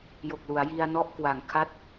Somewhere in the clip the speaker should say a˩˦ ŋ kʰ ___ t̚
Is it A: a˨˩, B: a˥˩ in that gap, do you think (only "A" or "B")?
B